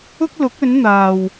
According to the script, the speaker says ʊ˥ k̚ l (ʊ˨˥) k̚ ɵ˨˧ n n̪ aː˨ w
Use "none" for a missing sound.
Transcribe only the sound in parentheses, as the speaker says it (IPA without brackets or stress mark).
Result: ʊ˨˥